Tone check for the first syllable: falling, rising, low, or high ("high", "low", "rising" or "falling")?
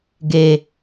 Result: low